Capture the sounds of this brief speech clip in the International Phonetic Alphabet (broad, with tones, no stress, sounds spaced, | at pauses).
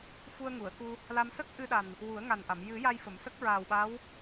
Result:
f u˧ ə̯ ŋ u˨˩˨ ə̯ k u˧ | l a˧ m s ə˦˥ k̚ ʔ ɨ˧ ɗ a˨˩ n | w u˨˩˦ ə̯ ŋ a˨˩ n ʔ a˨˩˨ m j ɨ˨˩˦ j a˧ j f ə˨˩˨ m s ə˦˥ k̚ ɹ aː˨˩ w ɓ a˧˥ w